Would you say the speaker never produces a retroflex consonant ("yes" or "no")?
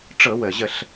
no